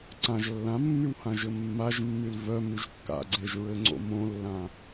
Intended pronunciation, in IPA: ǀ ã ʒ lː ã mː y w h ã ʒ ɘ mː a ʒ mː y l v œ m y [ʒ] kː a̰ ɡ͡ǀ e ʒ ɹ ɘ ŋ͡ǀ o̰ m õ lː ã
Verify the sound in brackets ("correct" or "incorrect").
correct